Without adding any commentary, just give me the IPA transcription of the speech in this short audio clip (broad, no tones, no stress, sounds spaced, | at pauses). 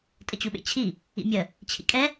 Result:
tʼ ə t͡ɕ u ɓ ḛ t͡ɕʰ i | ḭ mʲ ə | t͡ɕʰ ḭ kʼ ɛ